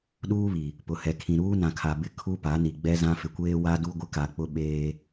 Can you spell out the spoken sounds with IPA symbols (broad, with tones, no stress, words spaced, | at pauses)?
ɗuː˦βi˨ | pʊ˨hɛ˨kʰĩ˨ ɾuː˦nã˨kʰa˨ bɪ˦ kʰu˦pa˨˦ni˨ ɡ͡bɛ˦zã˦ fɪ˨kʷeː˦ wa˦du˦ɡʷɪ˦ka˨ k͡pʊ˦ɓeː˦